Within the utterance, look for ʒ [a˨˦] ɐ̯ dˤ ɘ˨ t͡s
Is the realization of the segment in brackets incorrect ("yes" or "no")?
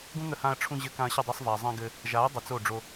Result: no